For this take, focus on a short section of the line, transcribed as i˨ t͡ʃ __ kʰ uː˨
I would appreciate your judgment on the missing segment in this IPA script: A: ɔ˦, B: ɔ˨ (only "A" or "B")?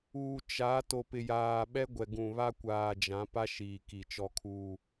B